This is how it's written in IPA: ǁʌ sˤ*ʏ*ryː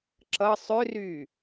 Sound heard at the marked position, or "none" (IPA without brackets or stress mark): ʏ